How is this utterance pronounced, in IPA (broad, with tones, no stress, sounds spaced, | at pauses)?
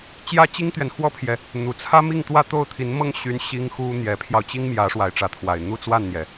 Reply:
t͡ɕ j ä˥ t͡ɕ i˥ ŋ t̪ ɥ ɛ˨ n x w ɔ˥ pʰ j ɛ˨ | n̪ u˨˩ t͡sʰ ä˥ m i˥˧ ŋ t̪ w ä˥˧ t̪ o˥˩ ʊ̯ t̪ʰ i˧˥ n m ɤ˥ ŋ ɕ y˧˥ n ɕ i˥ ŋ x u˥ n̪ j ɛ˧˥ pʰ j ɑ˧ ʊ̯ t͡ɕ i˥ ŋ m j ä˧˥ ʂ w a˧˥ ɪ̯ ʈ͡ʂ ä˧˥ t̪ʰ w a˨˩ ɪ̯ n̪ u˥˧ t͡s w a˥˩ n n̪ j ɛ˩